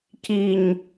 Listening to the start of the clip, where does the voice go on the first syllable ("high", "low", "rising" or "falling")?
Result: low